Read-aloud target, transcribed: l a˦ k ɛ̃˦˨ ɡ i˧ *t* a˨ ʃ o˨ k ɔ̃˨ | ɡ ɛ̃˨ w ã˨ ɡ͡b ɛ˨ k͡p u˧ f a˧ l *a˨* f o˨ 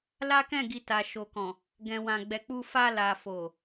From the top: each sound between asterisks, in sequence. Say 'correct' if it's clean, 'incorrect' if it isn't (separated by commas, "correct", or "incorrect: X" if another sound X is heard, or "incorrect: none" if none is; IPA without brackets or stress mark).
correct, correct